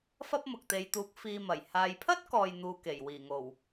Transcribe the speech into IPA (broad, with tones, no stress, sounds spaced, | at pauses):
f ɐ˥ p̚ m ʊ˨ k̚ t̪ e˨˧ j t̪ uː˨˥ k̚ f iː˧ m ɐ˨˩ j h aː˨ j pʰ ɐ˥ t̚ k ɔː˨ j n̪ uː˧ k e˨˩ j w iː˨˩ ŋ o˨˩ w